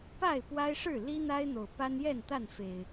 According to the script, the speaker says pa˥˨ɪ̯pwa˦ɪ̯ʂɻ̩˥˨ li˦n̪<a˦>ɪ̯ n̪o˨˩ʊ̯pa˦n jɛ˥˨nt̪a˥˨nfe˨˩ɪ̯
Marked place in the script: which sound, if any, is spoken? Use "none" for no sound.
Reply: a˦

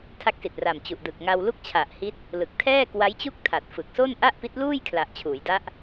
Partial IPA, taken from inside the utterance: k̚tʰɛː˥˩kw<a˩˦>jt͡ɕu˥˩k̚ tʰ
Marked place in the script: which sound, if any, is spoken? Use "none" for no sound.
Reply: a˦˥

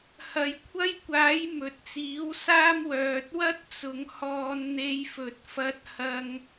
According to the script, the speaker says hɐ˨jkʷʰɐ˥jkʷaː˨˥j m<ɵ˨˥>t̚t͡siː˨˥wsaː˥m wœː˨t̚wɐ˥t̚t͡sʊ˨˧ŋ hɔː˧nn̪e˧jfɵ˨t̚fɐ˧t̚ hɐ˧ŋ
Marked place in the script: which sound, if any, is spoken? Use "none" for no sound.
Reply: ɵ˨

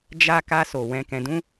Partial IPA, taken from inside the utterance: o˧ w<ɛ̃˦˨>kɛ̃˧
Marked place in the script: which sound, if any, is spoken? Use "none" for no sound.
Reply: ɛ̃˧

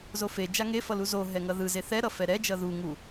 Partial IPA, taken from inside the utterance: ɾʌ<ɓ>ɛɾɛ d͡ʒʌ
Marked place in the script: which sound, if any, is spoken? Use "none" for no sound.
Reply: f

